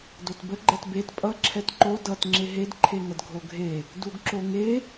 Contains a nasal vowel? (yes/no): no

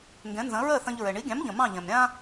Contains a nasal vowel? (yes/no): yes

